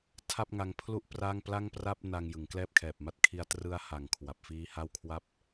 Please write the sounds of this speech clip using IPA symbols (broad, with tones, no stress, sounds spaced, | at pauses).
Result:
tʰ a˥˩ p̚ ŋ a˧ ŋ pʰ l u˥˩ ʔ p r a˥˩ ŋ p l a˥˩ ŋ p r a˥˩ p̚ n a˧ ŋ j ɯ˩˦ ŋ k l ɛː˥˩ p̚ kʰ ɛː˨˩ p̚ m a˦˥ t̚ kʰ i˧ a̯ t r ɯ˦˥ a̯ h a˨˩ ŋ kʰ w a˨˩ p̚ f iː˦˥ h a˥˩ w kʰ w a˥˩ p̚